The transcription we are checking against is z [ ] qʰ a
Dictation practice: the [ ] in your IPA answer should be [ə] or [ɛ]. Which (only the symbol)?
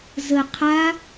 ə